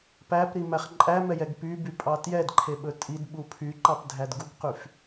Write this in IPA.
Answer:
p æ p ɾ i m æ χ ǃʼ æ m ɛ j ɛ ɡ p y b y pʼ ɑ t j ɛ d ǃʰ e ɓ ɵ tʼ i d ɓ u pʰ y ǃ ɑ p dʱ æ d ɡ u ɡ q y f

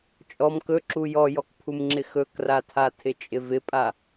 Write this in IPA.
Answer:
t͡ʃʼ ɔ m k ɵ ǁ u j ɔ j ɔ k pʰ u m ŋ͡ǁ ɪ x ɵ k r a tʰ a tʰ ɪ t͡ʃʼ ɪ v ɪ pʼ a

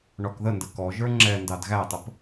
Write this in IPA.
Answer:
ɳ ɔ k ð ə n d ə k ɔ ʒ ə˞ ŋ͡ǁ ɛ n d ɑ d ɣ æ tˤ ə p

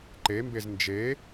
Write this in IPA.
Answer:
ǃ e m b e z n d͡ʒ e

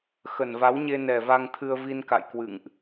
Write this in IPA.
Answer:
x ə˨˩ n v a˨˦ w ɲ e˧ n ɛ˨˩ v a˧ ŋ t̪ʰ ɨ˧ ə̯ v i˧ n k a̰˧˨ j k w ɨ̰˧˨ ŋ ʔ

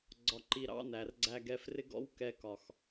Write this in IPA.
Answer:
ɡ͡ǀ ɒ˧ ǃ i˧ ɾ ɑ̰˦ n æ˨ r ɡ͡ǀ æ˧ ɡ ɛ˧ f r ɪ˦ ɡ ɔ̰˦ w k ɛ˧ k ɒ˨ x

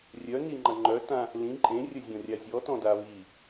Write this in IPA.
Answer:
rʲ œ n i ŋ͡ǃ ɐ ŋ͡ǃ œ t ã | l ĩ ǃʼ ẽ rʲ ə zʲ ɔ̃ rʲ a zʲ ɔ t ɔ̃ d a β i

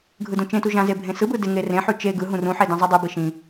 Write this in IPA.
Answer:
ɡʱ ɯ d ũ t͡ʃ ẽ t u ʒ ã z e bʱ ẽ s ɯ b ɯ d ɪ ŋ e r ẽ ħ ʉ t͡ʃ e ɡ ɯ ɦ ũ r ũ ħ e d ã zˤ ɯ dˤ ʉ b i ʃ ĩ

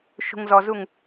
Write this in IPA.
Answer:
ʃ ṳ ŋ z ɔ z u ŋ

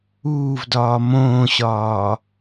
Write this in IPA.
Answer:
uː v d ɒː m õː ɕ ɒː

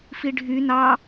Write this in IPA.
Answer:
f i ɖʱ y n ɑ

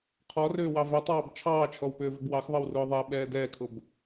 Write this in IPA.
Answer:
qʰ ɔ r ʏː w ɑ v æ tˤ ɑː b t͡ʃʰ ɑː t͡ʃʰ ɔ w p ʏː v ʏ b w ɑ x ðˤ ə w r ʊː ðˤ æ ɓ ɛː d ɛː kʰ ʊ b

